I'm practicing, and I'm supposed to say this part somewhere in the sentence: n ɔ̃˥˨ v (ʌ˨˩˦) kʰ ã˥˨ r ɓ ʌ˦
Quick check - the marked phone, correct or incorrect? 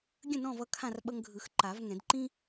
incorrect